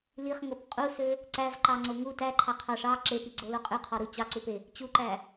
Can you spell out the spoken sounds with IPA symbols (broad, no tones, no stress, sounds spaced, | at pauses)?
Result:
l i χ ŋ o p qʼ u s ø | ǀ æ v ǃ ɑ ŋ͡ǀ o ŋ u t æ ǃʰ ɑ qʰ ɑ ʂ ɑ ǁ e p i ɡ͡ǀ o l o qʼ ʉ qʰ ɔ ɾ u t͡ɕ ɑ ǀ u p e | t͡ɕ u ǃ æ